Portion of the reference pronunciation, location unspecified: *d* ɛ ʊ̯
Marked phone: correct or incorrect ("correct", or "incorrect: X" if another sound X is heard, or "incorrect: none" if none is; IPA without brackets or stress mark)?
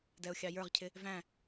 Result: correct